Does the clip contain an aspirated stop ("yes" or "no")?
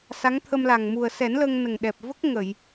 yes